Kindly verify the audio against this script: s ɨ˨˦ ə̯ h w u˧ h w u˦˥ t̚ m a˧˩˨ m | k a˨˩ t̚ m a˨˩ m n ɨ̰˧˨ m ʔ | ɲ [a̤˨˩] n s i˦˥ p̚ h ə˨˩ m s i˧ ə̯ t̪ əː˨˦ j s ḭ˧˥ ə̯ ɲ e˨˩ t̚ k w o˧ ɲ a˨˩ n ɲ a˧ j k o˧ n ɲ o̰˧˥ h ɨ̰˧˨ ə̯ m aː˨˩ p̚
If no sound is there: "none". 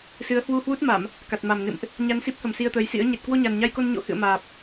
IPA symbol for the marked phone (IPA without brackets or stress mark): a˧